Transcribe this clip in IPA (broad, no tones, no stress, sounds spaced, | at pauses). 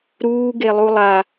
ɾ uː ɡ e lˠ u lˠ a